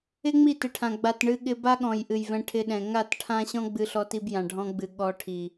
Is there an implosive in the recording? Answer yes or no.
yes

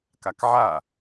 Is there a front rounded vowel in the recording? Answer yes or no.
no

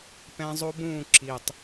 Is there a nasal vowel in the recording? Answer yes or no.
yes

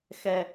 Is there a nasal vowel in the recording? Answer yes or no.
no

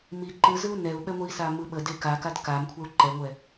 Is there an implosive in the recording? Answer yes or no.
yes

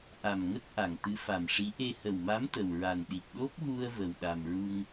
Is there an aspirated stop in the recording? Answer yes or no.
no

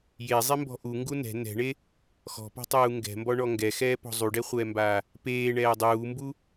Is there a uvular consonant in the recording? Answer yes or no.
yes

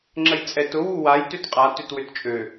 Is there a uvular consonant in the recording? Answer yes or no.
yes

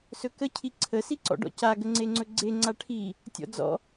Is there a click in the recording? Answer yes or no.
yes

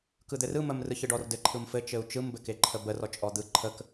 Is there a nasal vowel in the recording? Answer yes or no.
no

